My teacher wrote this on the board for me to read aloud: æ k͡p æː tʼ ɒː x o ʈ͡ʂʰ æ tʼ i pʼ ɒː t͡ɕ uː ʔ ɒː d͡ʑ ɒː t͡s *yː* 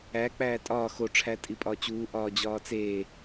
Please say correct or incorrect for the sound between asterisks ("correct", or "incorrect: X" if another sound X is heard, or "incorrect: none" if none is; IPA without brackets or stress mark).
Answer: incorrect: eː